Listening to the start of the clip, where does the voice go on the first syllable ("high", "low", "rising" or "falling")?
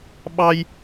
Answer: high